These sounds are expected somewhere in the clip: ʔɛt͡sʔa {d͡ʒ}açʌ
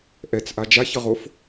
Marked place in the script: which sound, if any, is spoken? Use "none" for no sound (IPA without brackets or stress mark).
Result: d͡ʒ